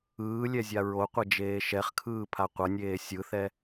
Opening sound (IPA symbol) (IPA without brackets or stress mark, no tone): ɯː